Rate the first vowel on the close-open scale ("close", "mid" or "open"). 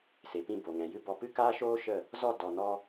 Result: mid